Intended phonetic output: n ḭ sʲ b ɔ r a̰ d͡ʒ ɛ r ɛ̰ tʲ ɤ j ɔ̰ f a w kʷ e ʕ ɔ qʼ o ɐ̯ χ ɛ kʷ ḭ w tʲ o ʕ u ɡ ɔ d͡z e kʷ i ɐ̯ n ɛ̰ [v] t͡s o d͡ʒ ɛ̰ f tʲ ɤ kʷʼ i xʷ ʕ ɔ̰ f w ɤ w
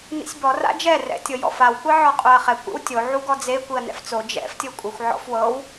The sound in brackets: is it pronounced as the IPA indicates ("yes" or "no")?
no